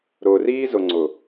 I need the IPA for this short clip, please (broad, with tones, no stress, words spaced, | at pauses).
ɾʊː˨riː˦zʊ˨ ŋ͡ǀʊ˨